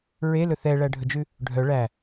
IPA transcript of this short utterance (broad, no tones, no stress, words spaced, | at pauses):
ɹelɵ θɛɭæɖʱɵd͡ʒʉ | ɖʱœ ɭæ